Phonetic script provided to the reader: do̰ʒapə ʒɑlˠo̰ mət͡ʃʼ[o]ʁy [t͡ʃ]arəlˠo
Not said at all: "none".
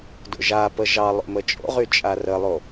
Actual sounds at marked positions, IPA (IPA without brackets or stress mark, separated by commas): o̰, t͡ʃʼ